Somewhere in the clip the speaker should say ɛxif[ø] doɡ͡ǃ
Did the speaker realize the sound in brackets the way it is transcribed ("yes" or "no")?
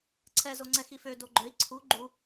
yes